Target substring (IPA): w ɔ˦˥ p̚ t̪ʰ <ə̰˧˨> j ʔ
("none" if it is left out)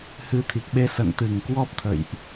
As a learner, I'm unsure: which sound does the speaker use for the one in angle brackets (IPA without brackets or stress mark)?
ə̰˧˨